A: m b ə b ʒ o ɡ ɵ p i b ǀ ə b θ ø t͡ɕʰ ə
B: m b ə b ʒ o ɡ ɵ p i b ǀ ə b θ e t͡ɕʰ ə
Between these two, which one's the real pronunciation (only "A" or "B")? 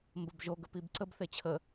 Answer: B